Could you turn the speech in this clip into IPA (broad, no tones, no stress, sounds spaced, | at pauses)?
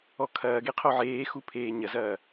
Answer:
ɔ kʰ ɐː ɡ e qʰ o ʕ eː x u pʰ eː ɲ ɐ z ɐː